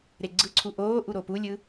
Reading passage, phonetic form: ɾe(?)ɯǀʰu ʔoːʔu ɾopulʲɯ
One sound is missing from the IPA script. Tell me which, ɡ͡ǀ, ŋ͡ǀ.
ɡ͡ǀ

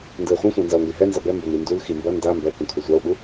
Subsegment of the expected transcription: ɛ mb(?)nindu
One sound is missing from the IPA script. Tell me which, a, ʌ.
ʌ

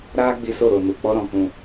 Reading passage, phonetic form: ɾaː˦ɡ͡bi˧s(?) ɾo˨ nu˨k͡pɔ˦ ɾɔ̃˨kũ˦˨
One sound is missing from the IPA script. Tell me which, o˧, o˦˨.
o˦˨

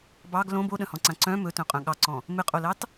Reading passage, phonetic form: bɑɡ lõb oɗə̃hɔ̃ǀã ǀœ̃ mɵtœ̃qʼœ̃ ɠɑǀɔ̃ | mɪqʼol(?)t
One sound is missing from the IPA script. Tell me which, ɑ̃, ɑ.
ɑ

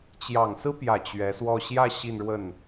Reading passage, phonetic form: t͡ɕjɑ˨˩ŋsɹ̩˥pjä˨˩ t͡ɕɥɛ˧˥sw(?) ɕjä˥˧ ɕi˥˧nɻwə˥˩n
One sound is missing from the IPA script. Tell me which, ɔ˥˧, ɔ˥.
ɔ˥˧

